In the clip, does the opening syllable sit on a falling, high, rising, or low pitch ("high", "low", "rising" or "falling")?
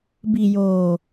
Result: low